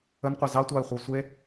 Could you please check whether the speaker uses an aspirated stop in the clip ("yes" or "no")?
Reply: no